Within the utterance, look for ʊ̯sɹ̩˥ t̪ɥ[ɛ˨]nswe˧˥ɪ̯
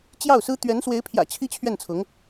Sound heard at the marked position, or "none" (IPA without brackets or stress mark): ɛ˧˥